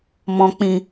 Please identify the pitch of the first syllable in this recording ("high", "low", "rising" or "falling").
low